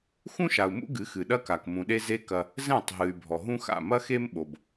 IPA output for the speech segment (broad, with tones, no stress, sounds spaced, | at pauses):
x ũ˦ ʃ a˨ u̯ m ṵ˦ ɡ ɨ˨˦ x ɨ˨ ɗ ɐ˦ k a˨ k m ũ˨ ɗ e˦ z e˦ k ɐ˦ | z ɛ̃˦˨ tˤ ɦ ɨ˨ y̯ bʱ ɔ˨ ɦ ũ˦ x a̰˦˨ m ɐ˦ x e˦ m ɓ o˨ b